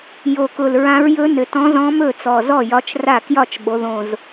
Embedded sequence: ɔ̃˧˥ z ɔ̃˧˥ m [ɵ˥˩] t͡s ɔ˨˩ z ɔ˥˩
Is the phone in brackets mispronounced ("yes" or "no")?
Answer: no